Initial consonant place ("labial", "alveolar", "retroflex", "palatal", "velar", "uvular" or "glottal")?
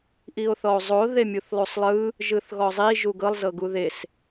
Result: glottal